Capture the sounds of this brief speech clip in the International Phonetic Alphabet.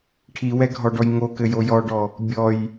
ʈʰ i w ɛ ɡʱ ɔ ɖ ɔ j ŋ o k ɘ j o j ɔ ɖ ɔ | bʲ ɔ j

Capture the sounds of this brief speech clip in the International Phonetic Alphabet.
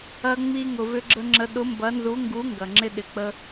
ɐ˧ ŋ͡m i˧ ŋ ʊ˩ v ʏ˧ ɡ͡ǁ ə˧ ŋ͡ǁ ə˨˥ ɗ ʊ˨˥ m b ɐ˨˥ n z u˨˥ ŋ ɡ u˨˥ ŋ ɡ ɐ˩ ŋ͡ǁ ɪ˧ ɗ ɪ˩ k͡p ə˧

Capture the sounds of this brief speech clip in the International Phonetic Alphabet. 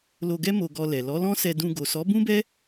l o˧ ɡ ɛ˦ m o˧ ɡ ɔ˧ l ɛ˨ l ɔ˨˦ l ɔ̃˦ s ɛ˧ d ũ˧ ɡ o˨ s ɔ˨˦ b ũ˦ b ɛ˦

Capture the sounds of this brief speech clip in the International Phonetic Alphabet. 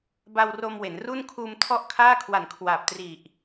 b a˧ w r o˧ m w e˩˦ n r u˥˩ n kʰ uː˧ m tʰ ɔ˥˩ ʔ kʰ aː˥˩ kʰ w a˨˩ n kʰ w aː˨˩ p̚ t r i˨˩ ʔ

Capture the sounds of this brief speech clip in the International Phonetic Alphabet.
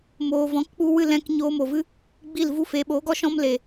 m oː˨ v ɔ̃˨˦ k k͡p u˧ w ɨ˦˨ l ɛ̃˧ k ɲ oː˧ m o˨ v ɨ˦ | ɡ͡b i˦˨ l v u˦ f eː˨ ɓ oː˨˦ ɡ ɔ˦ ʃ ɔ̃˦ m l e˨

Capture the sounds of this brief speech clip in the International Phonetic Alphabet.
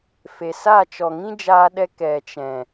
f e˨ s a˦˨ t͡ʃ ɔ˨ ŋ ĩ˦ d͡ʒ aː˧ ɗ ɛ˧ k ɛ˨ t͡ʃ ɛ̃˨

